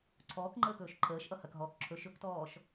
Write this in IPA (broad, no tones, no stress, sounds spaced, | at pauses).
ǀʰ ɔː k ŋ͡ǃ əː k ɵː ʃ ǃʰ əː ʃ ʔ ʌ h ɐ k ɦ ɔː k ǁʰ ɵ ʃ ɵ k t ɔː ʃ